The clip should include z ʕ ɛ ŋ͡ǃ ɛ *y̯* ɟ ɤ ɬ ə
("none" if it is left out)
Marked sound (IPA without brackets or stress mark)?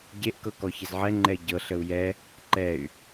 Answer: i̯